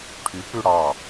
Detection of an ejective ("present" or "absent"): absent